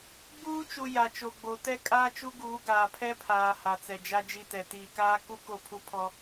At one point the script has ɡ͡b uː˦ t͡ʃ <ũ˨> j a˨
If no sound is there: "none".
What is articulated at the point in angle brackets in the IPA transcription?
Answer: u˨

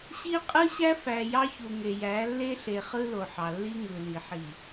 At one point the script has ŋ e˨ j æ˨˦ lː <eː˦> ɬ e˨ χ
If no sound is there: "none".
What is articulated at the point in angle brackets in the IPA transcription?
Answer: e˦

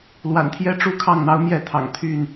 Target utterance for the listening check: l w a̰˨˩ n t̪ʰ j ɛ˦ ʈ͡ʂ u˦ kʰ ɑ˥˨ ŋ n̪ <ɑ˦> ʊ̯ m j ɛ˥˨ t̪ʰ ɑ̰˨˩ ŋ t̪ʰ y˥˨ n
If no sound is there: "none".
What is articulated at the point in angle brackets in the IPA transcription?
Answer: ɑ˦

